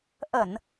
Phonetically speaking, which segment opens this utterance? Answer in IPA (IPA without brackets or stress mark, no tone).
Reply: ʔ